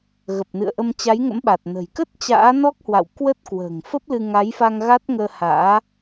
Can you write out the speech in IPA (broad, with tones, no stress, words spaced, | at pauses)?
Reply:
ɣə˨˩p̚nɨ̰˧˨ə̯ʔə˧m t͡ɕa˨˦jŋə̰˧˥mɓa˨˩t̚ nə̤˨˩j kə˦˥t̚ t͡ɕa̰ː˧˥nɔ˦˥k̚hwa̰˧˨w kwə˦˥t̚ kwə̤ː˨˩ŋfə˦˥p̚lɨ˧ ŋa˨˦jfa˧ŋ ɣa˦˥t̚ŋəː˧ha̰ː˧˥